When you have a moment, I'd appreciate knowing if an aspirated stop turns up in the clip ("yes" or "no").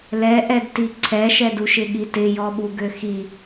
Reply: yes